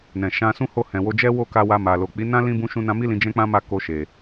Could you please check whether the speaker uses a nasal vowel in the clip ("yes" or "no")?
yes